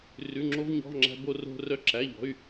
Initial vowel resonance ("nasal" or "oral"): oral